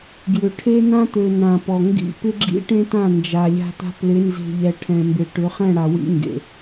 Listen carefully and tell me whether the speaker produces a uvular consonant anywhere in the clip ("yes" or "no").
yes